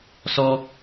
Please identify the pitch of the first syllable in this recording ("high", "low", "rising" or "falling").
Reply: high